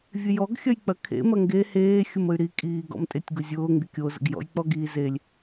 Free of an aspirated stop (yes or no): no